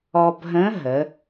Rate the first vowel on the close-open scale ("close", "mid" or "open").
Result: mid